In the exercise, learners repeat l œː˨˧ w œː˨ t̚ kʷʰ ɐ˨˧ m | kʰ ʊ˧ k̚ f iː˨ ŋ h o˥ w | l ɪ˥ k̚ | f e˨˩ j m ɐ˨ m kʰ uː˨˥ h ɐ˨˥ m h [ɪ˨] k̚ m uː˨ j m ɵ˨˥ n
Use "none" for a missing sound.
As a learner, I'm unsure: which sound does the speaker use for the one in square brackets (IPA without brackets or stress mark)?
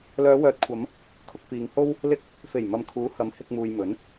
ɪ˧